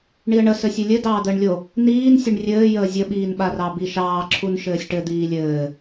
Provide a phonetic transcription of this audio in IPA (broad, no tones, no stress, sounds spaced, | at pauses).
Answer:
ɳ i ə̯ ɳ ə s ɘ sʲ ɘ lʲ ɘ d ɑː d̪ əː ɳ lʲ o | n iː n sʲ ɘ ɳ rʲ ɘː j əː zʲ ə ɓ iː n ɓ a r ɑ b i ʃ ɑː ǁʰ u n ʃ ɘː sʲ ʈ ɘ d̪ iː lʲ ɘː